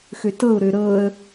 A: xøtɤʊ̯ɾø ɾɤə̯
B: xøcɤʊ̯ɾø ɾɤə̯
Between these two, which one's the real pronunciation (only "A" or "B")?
A